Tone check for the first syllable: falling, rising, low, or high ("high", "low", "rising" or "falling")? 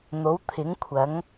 rising